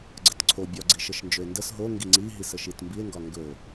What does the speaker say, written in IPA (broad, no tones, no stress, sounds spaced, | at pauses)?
ɡ͡ǀ ə t ǀʰ o bʲ ɒ ɡ͡ǀ i ʃ ə ʃ n d͡ʒ ɵ e̯ n d ə s ɦ o ŋ ɡ i ŋ͡ǀ i ɦ i s ə ʃ i t m b i e̯ ŋ ɡ ɒ ŋ ɡ ɵ o̯